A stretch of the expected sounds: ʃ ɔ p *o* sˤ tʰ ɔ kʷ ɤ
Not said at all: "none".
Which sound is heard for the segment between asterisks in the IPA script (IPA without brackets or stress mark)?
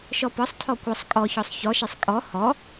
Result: ɤ